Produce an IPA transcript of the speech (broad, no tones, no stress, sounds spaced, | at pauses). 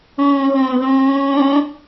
õː ɣ õ ð õː